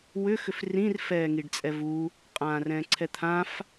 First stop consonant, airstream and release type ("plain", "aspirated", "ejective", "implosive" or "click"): plain